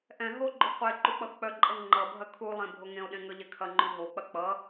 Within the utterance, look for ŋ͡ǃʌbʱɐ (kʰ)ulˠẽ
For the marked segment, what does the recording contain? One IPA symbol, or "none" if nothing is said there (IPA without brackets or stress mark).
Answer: kʰ